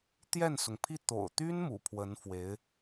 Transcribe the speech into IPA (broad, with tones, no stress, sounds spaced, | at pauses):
t̪ j ɛ˥˩ n s ʊ˩ ŋ pʰ i˥˩ t̪ o̰˨˩ ʊ̯ t̪ y˥ n m ṵ˨˩ pʰ w ə˧˥ n f w e˧˥ ɪ̯